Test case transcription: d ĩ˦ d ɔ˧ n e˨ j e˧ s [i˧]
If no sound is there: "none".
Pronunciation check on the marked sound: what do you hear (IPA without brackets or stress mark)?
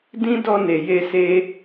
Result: e˧